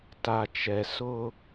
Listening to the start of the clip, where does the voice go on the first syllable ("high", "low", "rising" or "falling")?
low